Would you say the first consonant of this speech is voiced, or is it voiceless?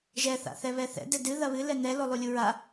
voiced